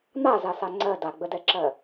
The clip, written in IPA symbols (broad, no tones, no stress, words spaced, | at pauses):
n̪azasa ŋ͡ǀɜ daɡ͡bədɛǁɜ